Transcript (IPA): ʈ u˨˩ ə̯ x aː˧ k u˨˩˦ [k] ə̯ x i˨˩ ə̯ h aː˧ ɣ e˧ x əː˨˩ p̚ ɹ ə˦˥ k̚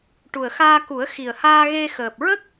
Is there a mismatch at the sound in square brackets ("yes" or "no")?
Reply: yes